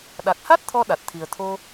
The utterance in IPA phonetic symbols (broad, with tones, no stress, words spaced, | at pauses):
ɗa˨˩k̚ha˦˥t̚ t̪ʰɔ˧ɗa˨˩t̚t̪ʰi˨˩ə̯t̪ʰo˧